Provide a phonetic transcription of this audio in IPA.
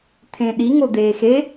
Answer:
t̪ʰẽɗi ŋod̪eːxe

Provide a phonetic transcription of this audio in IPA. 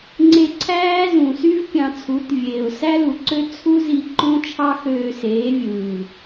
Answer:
ŋ͡ǀe˧ǀʰæː˦zũ˨sy˦v pʲɑ̃˧t͡sʰu˨˦tvʲeː˨ʊ̯ sæ˦lu˨ǀø˦ t͡sʰu˦zi˧ ǃõ˦t͡ʃʰɑ˦ xøː˧seː˨˦ vʲɯː˨

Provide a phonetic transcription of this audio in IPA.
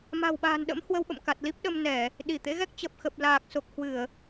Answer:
ma̤˨˩wɓa̤ː˨˩nɗə̰˧˥m hwə˧wɓə̰˧˨m ka˨˩t̚li˦˥p̚ɗə˧mnɛ˧˩˨ | ɗi˧˩t̪ḛ˧˥ɣɛ˦˥k̚ t͡ɕə˨˩p̚xə˨˩p̚ laː˨˩k̚so˨˩k̚ hwɨ˧˩˨ə̯

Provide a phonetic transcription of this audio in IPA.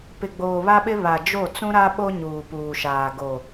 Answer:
pɪ˨ɡ͡boː˨βa˦ɓɪ˦ βa˨d͡ʒo˦˨ t͡sũ˦ɾa˦ ɓo˦ɲuː˨puː˨ʃaː˨ ɡo˨

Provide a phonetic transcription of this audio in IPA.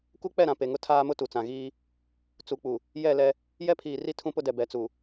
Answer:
ku˦k͡pɛ˦˨ɾã˨ pe˨ŋʊ˦ tʰaː˦mʊ˦ tu˨t͡sã˨ɣiː˦ | t͡su˨k͡pu˨ | jɛ˦˨ lɛ˦ | jɛ˦pʰiː˨ri˦ tʰũ˦pʊ˦dɛ˨ bɛ˨t͡su˨

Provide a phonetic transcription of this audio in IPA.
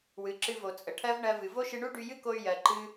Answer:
wɨ˩ ǁɨ˧vo˩ t͡sʼə˩ʈʰɜ˥v ɳɜ˧vɨ˩ vo˥ʃɨ˧ɳu˥ ɖy˧jɨ˥ko˧y̯ jɜ˩ǃɨ˧

